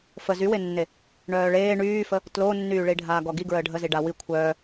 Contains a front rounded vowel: yes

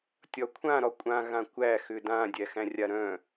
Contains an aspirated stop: yes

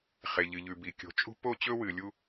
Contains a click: no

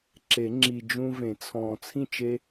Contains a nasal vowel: yes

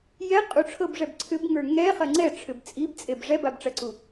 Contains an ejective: yes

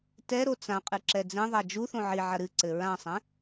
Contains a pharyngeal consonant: yes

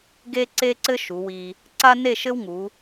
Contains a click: yes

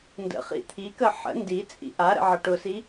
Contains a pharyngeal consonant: yes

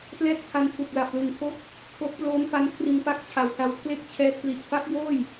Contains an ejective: no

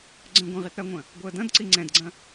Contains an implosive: no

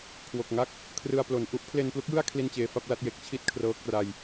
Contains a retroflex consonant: no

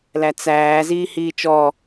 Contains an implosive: no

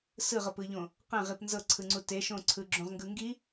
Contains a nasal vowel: yes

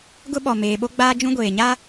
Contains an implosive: yes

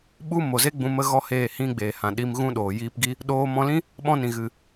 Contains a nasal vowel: yes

